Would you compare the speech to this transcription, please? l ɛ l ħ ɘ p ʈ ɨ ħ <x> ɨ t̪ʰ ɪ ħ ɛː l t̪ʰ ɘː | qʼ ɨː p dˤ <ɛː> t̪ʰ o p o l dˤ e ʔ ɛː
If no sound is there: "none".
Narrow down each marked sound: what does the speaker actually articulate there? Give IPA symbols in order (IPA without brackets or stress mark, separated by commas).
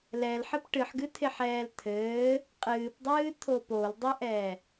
ɡ, ɨː